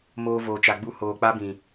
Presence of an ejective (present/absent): absent